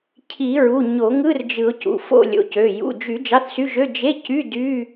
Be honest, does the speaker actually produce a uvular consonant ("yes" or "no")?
no